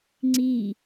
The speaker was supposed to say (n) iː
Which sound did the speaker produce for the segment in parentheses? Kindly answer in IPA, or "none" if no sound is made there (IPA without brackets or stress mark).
ŋ͡ǀ